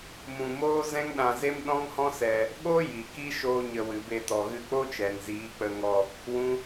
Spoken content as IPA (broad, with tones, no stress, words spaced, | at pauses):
mũ˧moː˦ zɛ̃˦ŋɗã˧ze˦m ɗɔ̃˦ŋhɔ̃˦sɛ˧ | ɓo˦ ji˨ki˦ ʃoː˦ɲə˧wɨ˨ be˧ tɔ˨ɣɨ˧k͡po˦t͡ʃɛ˨n ziː˨˦k͡pə˧ŋɔ˧ | wũ˦